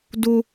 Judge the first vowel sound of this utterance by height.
high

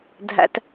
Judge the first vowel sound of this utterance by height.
low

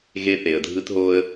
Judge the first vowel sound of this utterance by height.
mid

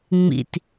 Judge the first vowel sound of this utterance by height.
high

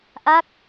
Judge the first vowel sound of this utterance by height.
low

